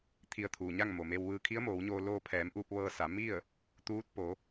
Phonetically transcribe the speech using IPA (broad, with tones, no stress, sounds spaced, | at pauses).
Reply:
t̪ʰ i˧ ə̯ t̪ʰ uː˩ ɲ a˥˨ ŋ m o˩ m e˧ w ʋ ɯː˧ kʰ i˧˥ ə̯ m oː˩˧ w ɲ oː˧ l oː˧ pʰ ɛː˩˧ m ʔ uː˧ p̚ ʋ ɤː˧ s a˩˧ m i˥˨ ə̯ | t̪ uː˧˥ t̚ p o˩˧